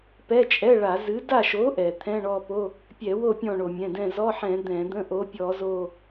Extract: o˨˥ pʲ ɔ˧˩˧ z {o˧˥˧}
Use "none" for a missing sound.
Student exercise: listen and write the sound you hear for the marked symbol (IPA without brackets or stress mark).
o˦˨